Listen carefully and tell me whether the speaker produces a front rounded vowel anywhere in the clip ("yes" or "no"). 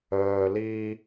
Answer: yes